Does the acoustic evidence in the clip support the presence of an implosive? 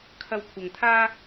no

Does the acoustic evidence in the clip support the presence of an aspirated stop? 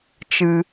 no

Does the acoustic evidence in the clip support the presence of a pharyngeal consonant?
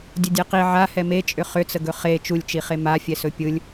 yes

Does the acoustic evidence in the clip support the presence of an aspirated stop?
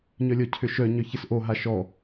yes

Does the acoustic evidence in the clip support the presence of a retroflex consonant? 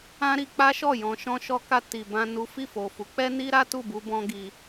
no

